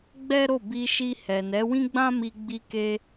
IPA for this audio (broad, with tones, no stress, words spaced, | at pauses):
ɡ͡bɛ˦ɾo˦˨ bi˧ʃi˧ hɛ˨ nɛ˨˦wĩ˦ɡ͡bã˦mi˧ ɡ͡bi˧ke˧